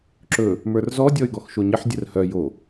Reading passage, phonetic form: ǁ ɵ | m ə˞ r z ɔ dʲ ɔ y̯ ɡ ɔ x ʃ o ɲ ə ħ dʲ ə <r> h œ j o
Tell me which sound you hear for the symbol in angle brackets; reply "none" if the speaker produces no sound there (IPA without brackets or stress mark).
r